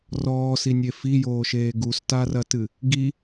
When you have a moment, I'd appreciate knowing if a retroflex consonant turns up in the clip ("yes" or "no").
no